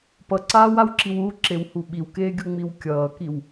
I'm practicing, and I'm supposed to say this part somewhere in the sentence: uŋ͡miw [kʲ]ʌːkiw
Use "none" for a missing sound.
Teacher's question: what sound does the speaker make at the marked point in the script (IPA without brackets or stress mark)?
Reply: kʲ